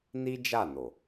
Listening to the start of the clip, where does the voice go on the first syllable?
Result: high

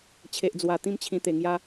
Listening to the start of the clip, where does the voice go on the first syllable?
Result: low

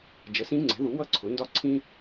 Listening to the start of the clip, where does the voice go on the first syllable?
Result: rising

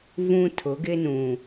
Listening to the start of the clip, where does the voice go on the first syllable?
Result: high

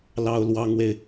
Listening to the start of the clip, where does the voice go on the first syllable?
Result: high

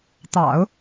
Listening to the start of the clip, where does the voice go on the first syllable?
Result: low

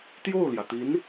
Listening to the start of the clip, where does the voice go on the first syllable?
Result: falling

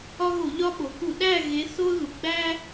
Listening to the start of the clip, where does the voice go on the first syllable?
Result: high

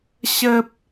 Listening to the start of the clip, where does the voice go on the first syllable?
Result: high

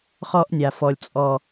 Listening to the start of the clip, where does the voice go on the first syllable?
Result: high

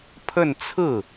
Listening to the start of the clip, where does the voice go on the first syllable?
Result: falling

